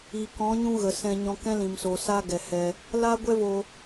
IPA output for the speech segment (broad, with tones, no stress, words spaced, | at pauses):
iː˨kɔ̃˨˦ ɲũ˦ɣə˨ sɛ̃˧ ɲɔ̃˧kɛ̃˦ lĩ˨msoː˨ saː˦ɡɛ˨hɛ˧ | laː˦ɡʷɛ˦vo˧